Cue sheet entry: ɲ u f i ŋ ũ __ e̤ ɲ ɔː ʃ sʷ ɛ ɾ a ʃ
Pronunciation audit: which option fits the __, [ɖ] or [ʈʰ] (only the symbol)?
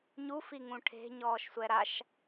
ʈʰ